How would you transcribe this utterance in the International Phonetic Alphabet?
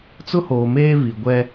t͡s ʊ˦ h oː˨ m eː˦ v i˨ ɡʷ ɛ˦

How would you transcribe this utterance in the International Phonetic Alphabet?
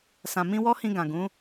s ã˨ m ĩ˧ w ɔ˦ h ĩ˧ ɡ ã˨ ɡ ũ˨˦

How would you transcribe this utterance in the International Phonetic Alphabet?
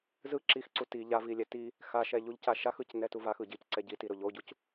z ɯ ǁ i x ǀ u t i ʎ a v i lʲ ɛ t i | x a ʃ ɛ ʎ u ʎ c a ʃ a x ɯ c n ɛ t u v a x ɯ ɟ i c ǀ ɛ ɟ i t i ɾ o ʎ o ɟ u c

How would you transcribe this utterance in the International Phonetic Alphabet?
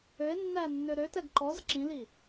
ø e̯ nː æ nː ø ɾ ø t ɛ ɡ ǃ ɔ z ǁ ĩ l i

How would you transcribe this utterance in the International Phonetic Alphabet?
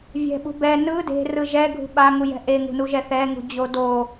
vʲ ɛ̤ ɓ ṳ b ɛ n ɯ d e̤ r ɯ ʒ ɛ ɡʱ ṳ ɓ a ŋ u j ɛ̤ ʔ e ŋ ṳ n u ʒ ɛ θ ɛ ŋ ṳ d͡ʑ o d o

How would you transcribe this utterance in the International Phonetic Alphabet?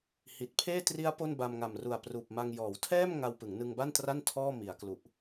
h i˨˩ t̚ pʰ eː˥˩ t r i˦˥ a̯ p o˥˩ n b a˧ m ŋ a˨˩ m r u˨˩ a̯ p r uː˨˩ p̚ m a˧ ŋ j ɔː˩˦ w tʰ ɛː˥˩ m ŋ a˧ w p ɯ˩˦ ŋ n ɯ˧ ŋ b a˥˩ n t r a˥˩ n tʰ ɔː˥˩ m i˩˦ a̯ k l u˨˩ ʔ

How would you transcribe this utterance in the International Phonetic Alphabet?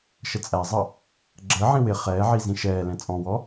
ʃ ə t͡sʼ æ zˤ ʌ | ɡ͡ǁ əː ʕ ĩ w ɪ χ ɛː ʕ i z ĩ ʃ ɛː l ɛ̃ t͡sʼ ɔ̃ w ɔ

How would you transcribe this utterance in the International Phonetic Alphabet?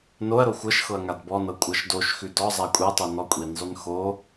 n o ɐ̯ ɾ o xʷ ɤ ʃ x ɤ ɐ̯ ŋ a d b ɔ n ɤ kʷʼ ɤ ʃ d o ʃ x ʉ d ɔ zˤ a kʷʼ ɛ tˤ o n ɔ kʷʼ i n zˤ ʉ n x o

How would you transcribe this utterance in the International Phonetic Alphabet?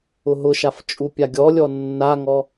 ʊ ɦ ʊ ʃ a f t͡ʃʼ u pʲ a ɡʲ ɔ lʲ ɔ nː a ŋ ɔ

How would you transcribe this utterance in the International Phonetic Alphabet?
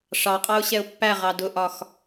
ʂ ɑ qʼ ɑ ʊ̯ ɕ ɛ ʊ̯ pː æ ʁ ɑ d ʊ ʔ ɒ x

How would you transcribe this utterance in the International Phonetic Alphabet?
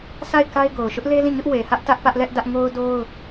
sʰ a˦˨ ɪ̯ k a˦ ɪ̯ ɡ o˨ ʊ̯ ʃ ʊ˦ ʔ l e˦ l ĩ˦˨ ɲ ʊ˦ ʔ w e˨ h ä˦ ʔ t ä˦ ʔ p ä˦ ʔ l ɛ˦ ʔ d ä˦ ʔ ŋ o˦ ʊ̯ d o˦ ʊ̯

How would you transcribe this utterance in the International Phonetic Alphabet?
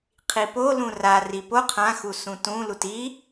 qʰ i p o l ũ r a r i p o qʰ ã x u s ũ t ũ l u t i

